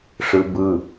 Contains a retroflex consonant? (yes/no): yes